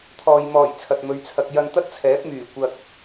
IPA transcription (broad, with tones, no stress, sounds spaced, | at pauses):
t̪ʰ ɔː˨ j m ɔː˨˩ j t͡sʰ ɐ˨ t̚ m ɵ˨˧ ɥ t͡sʰ ɐ˧ k̚ j ɐ˧ n t̪ ɐ˥ t̚ t͡sʰ ɛː˨˥ p̚ m yː˨˩ kʷ ɐ˧ k̚